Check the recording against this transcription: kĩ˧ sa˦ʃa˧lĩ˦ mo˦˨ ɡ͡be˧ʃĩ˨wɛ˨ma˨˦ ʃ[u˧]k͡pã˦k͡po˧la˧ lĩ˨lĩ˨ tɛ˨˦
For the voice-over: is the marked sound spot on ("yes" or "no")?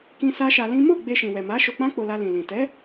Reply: no